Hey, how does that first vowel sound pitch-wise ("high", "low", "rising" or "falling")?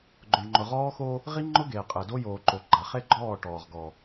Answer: low